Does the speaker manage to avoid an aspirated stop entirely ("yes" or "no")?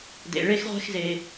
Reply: yes